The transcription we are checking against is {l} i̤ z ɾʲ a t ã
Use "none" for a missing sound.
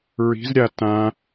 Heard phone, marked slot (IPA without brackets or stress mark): ɹ